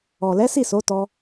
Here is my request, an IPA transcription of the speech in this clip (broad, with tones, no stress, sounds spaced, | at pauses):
ɔ˨ l ɛ˨˦ s i˦˨ s o˨˦ t ɔ˧